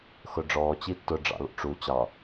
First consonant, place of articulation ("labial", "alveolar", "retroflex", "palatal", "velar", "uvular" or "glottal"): velar